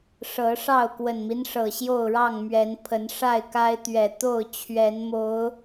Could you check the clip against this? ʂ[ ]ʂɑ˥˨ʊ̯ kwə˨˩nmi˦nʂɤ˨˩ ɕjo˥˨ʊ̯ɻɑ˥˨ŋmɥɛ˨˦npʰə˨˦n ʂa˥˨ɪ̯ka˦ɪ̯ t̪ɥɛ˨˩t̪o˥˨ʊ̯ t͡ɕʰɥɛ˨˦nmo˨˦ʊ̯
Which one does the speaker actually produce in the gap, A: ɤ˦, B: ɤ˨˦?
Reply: B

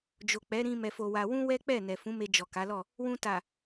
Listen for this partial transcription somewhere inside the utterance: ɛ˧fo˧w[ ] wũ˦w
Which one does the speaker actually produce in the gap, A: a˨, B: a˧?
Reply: B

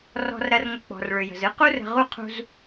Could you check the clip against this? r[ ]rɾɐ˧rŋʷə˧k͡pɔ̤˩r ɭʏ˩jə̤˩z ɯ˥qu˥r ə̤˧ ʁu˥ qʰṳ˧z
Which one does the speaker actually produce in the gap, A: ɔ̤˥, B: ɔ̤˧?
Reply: B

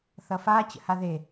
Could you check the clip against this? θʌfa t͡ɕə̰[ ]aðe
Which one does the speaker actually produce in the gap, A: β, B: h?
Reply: B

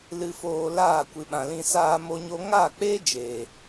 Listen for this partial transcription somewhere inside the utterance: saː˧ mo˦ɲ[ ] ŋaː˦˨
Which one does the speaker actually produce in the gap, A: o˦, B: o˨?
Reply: A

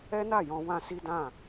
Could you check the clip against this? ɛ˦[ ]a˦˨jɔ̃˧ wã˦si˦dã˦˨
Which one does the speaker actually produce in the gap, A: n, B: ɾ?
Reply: A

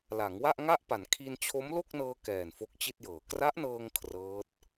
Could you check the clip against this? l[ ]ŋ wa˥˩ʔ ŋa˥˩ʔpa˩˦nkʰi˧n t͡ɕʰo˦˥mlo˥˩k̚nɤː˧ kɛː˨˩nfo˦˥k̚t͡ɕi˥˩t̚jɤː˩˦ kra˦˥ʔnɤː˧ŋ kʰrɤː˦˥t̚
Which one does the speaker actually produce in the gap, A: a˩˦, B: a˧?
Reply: A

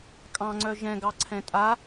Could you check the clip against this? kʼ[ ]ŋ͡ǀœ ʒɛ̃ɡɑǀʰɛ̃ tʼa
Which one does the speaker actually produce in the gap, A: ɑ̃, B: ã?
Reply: A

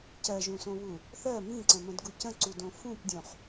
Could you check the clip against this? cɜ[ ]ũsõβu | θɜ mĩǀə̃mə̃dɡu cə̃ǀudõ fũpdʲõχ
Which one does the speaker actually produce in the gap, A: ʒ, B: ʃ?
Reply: A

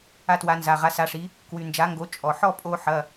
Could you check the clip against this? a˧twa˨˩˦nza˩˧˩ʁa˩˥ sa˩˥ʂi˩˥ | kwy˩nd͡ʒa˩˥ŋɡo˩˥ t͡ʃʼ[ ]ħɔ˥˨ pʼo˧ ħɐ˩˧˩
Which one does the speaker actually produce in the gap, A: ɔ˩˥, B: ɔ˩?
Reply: B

